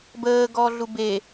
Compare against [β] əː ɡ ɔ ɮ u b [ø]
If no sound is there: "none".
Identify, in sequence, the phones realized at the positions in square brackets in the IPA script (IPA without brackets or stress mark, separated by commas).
b, e